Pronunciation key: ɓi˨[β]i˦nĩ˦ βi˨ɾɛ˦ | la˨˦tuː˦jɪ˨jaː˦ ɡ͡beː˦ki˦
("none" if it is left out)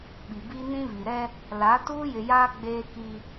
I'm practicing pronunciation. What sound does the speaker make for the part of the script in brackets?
b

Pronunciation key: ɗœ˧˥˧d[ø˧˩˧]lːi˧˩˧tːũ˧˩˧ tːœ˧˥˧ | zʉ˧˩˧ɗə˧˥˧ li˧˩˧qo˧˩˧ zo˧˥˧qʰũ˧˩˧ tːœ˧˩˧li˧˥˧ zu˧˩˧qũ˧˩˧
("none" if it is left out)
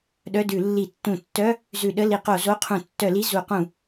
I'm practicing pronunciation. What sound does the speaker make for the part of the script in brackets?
ʉ˧˩˧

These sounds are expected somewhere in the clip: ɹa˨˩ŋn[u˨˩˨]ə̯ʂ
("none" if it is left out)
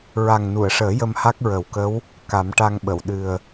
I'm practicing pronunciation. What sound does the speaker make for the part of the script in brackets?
u˨˩˨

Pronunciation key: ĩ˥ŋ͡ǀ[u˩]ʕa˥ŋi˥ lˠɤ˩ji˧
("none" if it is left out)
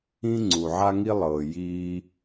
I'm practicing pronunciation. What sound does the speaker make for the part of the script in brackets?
u˩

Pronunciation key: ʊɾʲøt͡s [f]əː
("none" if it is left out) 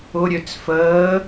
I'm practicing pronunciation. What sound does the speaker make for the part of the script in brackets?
f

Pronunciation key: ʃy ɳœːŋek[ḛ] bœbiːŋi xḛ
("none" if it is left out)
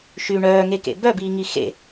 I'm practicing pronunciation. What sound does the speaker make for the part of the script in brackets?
ḛ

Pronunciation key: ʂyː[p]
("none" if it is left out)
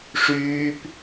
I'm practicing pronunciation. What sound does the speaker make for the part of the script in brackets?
p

